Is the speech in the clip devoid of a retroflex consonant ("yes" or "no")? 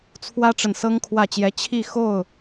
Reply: no